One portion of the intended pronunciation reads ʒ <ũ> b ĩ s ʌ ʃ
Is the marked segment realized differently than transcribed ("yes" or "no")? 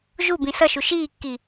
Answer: yes